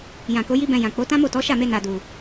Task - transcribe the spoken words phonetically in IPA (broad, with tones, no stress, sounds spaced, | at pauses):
j ã˨ k o˨˦ j i˦ b ɛ̃˧ j ã˨ k͡p o˨˦ t ã˦ m o˦˨ t ɔ˨˦ ʃ a˦˨ m e˧ n a˨ d u˨